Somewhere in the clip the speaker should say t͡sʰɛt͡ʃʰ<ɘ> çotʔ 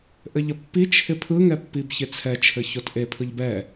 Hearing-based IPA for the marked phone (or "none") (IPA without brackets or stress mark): ɘ